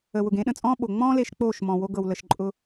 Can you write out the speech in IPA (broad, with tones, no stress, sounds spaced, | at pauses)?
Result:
ə˨ w ʊ˨ ɡ ẽ˨˦ ɗ ə̃˨ t͡sʼ ɔ̃ː˦ ɓ o˨ ŋ͡m ɔ̃ː˦ l e˧ ʃ k͡p oː˦˨ ʃ m ɔ̃˨ w o˧ ɡ ɤ˨ w l ə˨ ʃ ǃʼ ʊ˧